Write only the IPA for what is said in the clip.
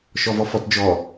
ʃ ɔ v ɔ f ɔ t d͡ʒ ɔ

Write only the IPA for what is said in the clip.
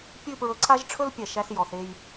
pʲ ʉ˥˧ p ɹ ɵ˧ ǀʰ a˥ ʒ ʈ͡ʂʰ ɵ˥ l pʲ ɛ˧˩ ʃ æ˥ s j ɔ˩˧ θ e˥˧ j

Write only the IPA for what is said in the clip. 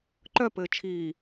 ǃ œ p ɘː t͡ʃʰ iː

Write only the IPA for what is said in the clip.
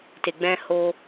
t e˨ ɡ͡b ɛ̃˧ h o˧

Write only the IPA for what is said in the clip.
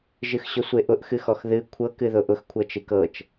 ʒ ɨ x ɕ ʊ sʷ e ʔ ʊ ʔ x ɨ x ɔ x ð ɨ kʷʰ ɤ k ɨ ð ʊ ʔ ʊ x kʷʰ ɤ t͡ʃ ɨ k ɤ t͡ʃ

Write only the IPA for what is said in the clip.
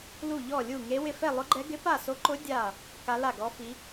l u˥˧ ʎ ɔ˥˧ lʲ u˥˧ ŋ e˦˥ w ɪ˥˧ f ɛ˥˧ lˠ ʊ˦˥ ɡ͡ǃ ɛ˦˥ ɡ ɪ˦˥ p a˥˧ s o˦˥ ǃ ʊ˦˥ dʲ a˥˧ | k a˦˥ l a˥˧ ɡ ɔ˦˥ f i˦˥

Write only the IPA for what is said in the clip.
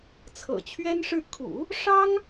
t͡sʰ ɤ̰˨˩ t͡ɕʰ ɥ ɛ˥ n ʂ ɻ̩˥˩ kʰ ṵ˨˩˦ | ʂ ɑ˥ ŋ

